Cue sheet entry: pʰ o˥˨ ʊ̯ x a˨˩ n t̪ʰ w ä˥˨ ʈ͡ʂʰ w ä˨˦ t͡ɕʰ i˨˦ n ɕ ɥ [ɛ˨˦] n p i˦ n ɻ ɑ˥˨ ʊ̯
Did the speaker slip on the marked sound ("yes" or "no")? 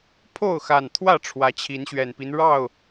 yes